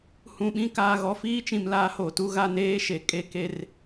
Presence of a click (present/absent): absent